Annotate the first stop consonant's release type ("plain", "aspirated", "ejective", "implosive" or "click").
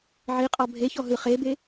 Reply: ejective